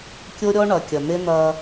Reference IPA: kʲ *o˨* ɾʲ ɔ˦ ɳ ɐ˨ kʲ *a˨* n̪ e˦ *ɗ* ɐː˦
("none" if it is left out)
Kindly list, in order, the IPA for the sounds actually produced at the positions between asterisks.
o˦, ɐ˨, n̪

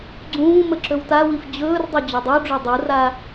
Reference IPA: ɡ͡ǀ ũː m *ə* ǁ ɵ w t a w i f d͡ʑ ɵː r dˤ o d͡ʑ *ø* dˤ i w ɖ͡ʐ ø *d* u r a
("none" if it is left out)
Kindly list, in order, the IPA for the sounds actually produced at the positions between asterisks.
ə, ø, dˤ

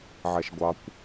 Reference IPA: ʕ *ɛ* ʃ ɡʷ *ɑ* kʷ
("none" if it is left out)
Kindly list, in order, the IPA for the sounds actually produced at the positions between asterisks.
ɛ, ɑ

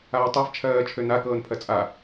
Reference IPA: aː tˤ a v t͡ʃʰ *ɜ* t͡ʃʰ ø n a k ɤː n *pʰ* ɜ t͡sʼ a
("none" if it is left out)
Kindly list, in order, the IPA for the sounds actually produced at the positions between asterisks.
ɜː, pʰ

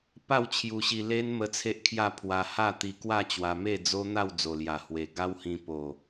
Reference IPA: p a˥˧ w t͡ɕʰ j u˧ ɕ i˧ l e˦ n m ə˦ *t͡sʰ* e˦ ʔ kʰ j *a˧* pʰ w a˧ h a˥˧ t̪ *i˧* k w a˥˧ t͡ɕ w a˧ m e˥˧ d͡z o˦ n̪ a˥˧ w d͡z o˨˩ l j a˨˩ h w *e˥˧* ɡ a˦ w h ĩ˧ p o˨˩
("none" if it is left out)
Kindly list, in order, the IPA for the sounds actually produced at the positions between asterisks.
t͡sʰ, a˥˧, i˧, e˨˩

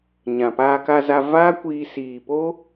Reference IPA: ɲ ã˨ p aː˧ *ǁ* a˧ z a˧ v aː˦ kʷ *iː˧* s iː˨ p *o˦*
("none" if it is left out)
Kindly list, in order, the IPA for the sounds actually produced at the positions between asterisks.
k, iː˧, o˦

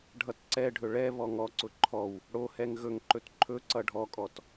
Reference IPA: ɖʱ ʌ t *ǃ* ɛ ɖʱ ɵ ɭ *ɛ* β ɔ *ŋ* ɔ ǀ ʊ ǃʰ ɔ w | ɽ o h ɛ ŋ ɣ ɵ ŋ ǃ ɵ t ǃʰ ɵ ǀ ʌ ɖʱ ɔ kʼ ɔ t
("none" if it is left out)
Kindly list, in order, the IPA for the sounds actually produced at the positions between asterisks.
ǀ, ɛ, ŋ

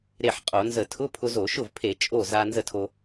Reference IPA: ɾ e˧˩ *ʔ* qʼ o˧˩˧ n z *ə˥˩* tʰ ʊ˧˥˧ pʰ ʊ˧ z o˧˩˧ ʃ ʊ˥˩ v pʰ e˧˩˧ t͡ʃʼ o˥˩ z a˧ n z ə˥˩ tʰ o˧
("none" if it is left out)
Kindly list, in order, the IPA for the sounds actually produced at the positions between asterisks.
ħ, ə˧˩˧

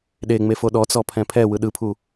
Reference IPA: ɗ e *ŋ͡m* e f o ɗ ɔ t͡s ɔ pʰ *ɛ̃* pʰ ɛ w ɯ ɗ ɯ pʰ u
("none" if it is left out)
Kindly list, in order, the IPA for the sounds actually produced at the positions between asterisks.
ŋ͡m, ɛ̃

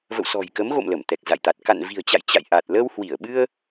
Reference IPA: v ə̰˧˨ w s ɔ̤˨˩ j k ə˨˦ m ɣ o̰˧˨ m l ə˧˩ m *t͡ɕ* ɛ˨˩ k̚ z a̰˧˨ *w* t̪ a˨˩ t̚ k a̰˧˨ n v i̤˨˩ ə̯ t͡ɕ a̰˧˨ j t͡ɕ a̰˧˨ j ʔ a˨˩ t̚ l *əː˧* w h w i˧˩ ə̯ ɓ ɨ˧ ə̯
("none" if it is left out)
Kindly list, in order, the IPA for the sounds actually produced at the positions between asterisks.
t̪, j, əː˧

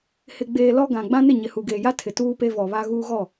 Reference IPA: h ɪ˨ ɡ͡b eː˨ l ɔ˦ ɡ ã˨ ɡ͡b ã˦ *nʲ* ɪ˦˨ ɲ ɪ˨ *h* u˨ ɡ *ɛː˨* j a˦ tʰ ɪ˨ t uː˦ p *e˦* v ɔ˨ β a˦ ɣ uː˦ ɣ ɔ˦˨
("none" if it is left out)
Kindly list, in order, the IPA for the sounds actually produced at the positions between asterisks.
n, h, eː˨, e˦

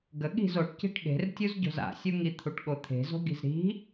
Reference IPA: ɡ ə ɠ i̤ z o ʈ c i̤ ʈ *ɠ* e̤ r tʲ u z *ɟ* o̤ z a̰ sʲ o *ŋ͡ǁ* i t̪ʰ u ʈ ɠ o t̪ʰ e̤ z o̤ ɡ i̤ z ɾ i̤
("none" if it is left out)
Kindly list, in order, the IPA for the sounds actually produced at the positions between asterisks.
ɠ, ɟ, ŋ

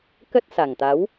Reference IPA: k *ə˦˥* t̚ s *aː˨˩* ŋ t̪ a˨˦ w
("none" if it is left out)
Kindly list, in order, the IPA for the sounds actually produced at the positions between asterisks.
ə˦˥, a˨˩

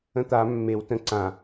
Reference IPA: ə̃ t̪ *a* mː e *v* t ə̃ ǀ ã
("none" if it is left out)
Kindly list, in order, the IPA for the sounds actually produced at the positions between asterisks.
a, w

